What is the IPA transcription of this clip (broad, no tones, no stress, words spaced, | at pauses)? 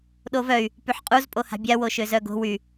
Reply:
ɗovœy̯ | pyħqʼuz pʼoha̤bʲa woʃøzœɡo̤ wy